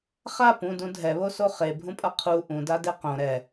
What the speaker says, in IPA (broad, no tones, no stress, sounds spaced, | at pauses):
χ a p ũ d ũ dʱ ɛ β o s o χ e bʱ ũ pʼ ʌ qʰ u ʔ ũ d a d e q õ ɾ ɛ